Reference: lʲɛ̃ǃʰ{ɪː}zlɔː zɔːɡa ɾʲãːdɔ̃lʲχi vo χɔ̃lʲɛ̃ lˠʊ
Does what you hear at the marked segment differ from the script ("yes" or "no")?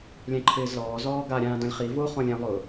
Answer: no